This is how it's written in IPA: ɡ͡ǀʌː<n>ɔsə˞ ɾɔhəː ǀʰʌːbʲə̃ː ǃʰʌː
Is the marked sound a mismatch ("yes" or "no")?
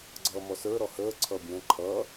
yes